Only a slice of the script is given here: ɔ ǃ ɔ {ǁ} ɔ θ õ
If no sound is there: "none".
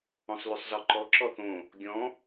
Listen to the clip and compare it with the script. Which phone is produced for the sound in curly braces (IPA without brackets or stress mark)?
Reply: ǁ